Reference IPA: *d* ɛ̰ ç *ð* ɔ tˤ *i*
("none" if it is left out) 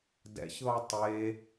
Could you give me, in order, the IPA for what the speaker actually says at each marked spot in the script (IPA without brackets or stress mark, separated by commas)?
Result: d, ð, e